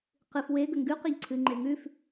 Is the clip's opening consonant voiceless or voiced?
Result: voiceless